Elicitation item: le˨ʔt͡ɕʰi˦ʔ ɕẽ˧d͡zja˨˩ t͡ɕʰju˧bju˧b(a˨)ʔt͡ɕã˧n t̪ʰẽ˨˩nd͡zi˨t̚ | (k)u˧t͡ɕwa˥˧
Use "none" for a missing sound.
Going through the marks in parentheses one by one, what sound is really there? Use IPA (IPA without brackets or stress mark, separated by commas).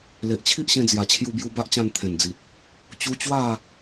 a˦, t͡ɕ